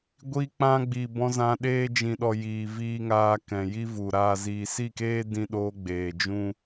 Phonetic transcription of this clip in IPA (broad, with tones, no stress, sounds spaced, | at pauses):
ɡʷ i˧ k͡p ã˧ ɡ͡b i˨ b ɔ̃˧ z ã˧ ɗ eː˧ d͡ʒ ĩ˨ ɗ ɔ˨ j iː˨ v iː˧ ŋ aː˧ k ɛ̃˨ j i˦ v u˨ ɾ aː˨ z iː˨ s i˦˨ k eː˦ d ĩ˧ ɗ oː˧ ɡ͡b eː˨ d͡ʒ ũ˦